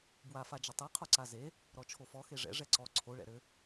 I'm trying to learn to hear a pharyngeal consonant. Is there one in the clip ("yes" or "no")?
no